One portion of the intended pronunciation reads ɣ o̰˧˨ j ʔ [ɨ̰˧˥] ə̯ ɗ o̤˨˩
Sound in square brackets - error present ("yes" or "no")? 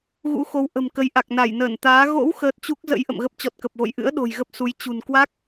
no